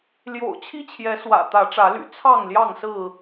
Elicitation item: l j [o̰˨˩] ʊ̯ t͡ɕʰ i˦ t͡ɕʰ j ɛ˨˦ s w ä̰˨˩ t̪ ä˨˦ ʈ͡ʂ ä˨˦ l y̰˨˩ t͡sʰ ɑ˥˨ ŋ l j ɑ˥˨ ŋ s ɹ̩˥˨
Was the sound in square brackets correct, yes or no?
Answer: yes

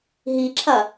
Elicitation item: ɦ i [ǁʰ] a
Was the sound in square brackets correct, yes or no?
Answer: yes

